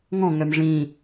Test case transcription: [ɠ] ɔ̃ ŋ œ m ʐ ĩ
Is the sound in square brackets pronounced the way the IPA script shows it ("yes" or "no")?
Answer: no